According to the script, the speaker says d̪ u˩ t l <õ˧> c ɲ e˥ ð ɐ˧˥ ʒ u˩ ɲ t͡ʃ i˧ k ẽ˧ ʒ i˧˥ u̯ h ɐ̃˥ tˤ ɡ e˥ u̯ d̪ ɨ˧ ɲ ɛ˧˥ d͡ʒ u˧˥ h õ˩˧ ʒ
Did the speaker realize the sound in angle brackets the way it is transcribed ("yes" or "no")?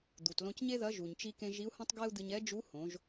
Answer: yes